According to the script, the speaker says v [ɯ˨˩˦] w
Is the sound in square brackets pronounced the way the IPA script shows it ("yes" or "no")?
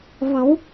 yes